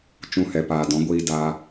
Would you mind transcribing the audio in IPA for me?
t͡ʃ ũ˧ h ɛ˨ p aː˨ d ɔ̃˨˦ ɡʷ iː˧ d a˧

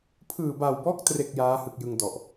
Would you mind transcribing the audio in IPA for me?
pʰ ɯː˨˩ b a˨˩ w b ɔː˦˥ k̚ t r e˨˩ k̚ j aː˦˥ h ɯ˨˩ k̚ j ɯ˧ ŋ d ɔ˨˩ ʔ

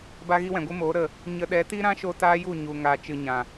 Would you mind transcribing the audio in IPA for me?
b a˦ ɣ i˦ w ɛ̃˨ ɡʷ ɨ˦ m oː˨˦ ɾ ə˦˨ | ɲ ə˧ ɗ ɛ˨˦ t i˦ ɾ ã˦ ʃ o˧ t aː˦ j u˦˨ ɲ u˨ ŋ aː˨ t͡ʃ ɨ˨ ɲ ã˨

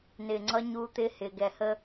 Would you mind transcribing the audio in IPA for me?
n ɪː˨ ŋ͡ǀ ʌ˦ ɲ uː˦ t̪ ɪː˦ h ɪː˨ ɡ ɛ˨ h ə˦

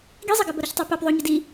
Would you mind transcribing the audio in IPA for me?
ɡ i zˤ ɐ ɡ ɘ b ɐ ɾ œ ç tˤ æ p æ p ðˤ o ɲ ɘ d i

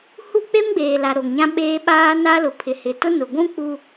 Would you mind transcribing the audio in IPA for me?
h u˦ k͡p e˦ m ɡ͡b eː˨ l a˨ ɾ o˨ ŋ ɲ ã˦ ɓ eː˦ ɓ aː˦ n a˦ l ʊ˨ pʰ ɪ˨ h ɪ˨ t ʊ˦ n ʊ˨ ɡʷ ũ˦ k͡p u˦

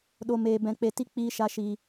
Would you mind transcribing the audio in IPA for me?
ɗ o˨ m eː˨ b ɛ̃˨ k͡p e˨ t i˦ k͡p iː˧ ʃ a˧ ʃ iː˨

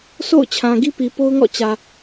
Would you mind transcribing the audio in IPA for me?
s o̰˦˨ ʊ̯ t͡ɕʰ ã˨ ɡ i˦ p i˨ p o˦ ʊ̯ ŋ ɔ̰˦˨ t͡ɕ ä˨

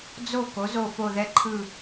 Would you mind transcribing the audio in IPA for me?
d͡z o˦˨ k o˨˥ z o˦˨ f o˦˨ ð ɛ˦˨ ǃʰ ɯ˦˨

